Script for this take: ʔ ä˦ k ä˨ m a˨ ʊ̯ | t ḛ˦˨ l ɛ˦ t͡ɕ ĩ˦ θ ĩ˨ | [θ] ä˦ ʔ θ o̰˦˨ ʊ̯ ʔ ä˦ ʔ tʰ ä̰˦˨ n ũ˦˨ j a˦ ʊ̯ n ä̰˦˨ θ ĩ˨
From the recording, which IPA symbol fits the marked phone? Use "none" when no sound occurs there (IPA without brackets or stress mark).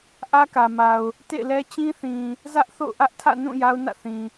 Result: z